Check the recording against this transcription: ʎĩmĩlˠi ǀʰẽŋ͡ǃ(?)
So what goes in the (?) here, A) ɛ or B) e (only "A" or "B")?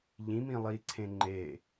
B